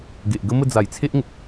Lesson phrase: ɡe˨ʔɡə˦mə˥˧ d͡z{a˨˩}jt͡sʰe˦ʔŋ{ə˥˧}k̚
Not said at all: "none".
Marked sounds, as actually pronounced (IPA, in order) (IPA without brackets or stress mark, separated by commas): a˨˩, ə˨